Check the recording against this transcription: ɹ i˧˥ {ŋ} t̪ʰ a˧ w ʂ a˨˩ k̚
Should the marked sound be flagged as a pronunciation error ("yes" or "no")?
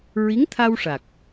no